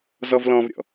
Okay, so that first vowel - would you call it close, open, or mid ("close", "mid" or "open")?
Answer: mid